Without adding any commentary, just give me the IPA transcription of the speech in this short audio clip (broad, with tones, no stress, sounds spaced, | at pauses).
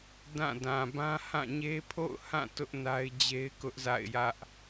d ã˦˨ d ã˨ b ã˦ h ã˦˨ ɲ e˦ pʰ o̰˦˨ ʊ̯ h ã˦˨ t ʊ˦ ʔ n a˦ ɪ̯ d͡ʑ e˦ ɪ̯ k ʊ˦ ʔ z a̰˦˨ ɪ̯ j ä˦ ʔ